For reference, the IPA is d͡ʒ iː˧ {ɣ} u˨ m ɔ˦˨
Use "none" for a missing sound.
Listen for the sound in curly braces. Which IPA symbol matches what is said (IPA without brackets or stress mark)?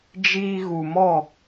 ɣ